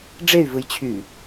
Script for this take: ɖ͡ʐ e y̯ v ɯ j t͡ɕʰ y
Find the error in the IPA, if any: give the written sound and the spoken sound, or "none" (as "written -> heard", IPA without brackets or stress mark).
none